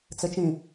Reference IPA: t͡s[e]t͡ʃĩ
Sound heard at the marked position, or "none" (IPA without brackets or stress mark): ɘ